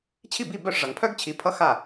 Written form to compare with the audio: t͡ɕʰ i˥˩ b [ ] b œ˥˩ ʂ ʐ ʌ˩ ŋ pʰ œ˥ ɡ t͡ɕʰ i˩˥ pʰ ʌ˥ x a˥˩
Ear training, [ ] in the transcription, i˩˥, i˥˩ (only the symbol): i˥˩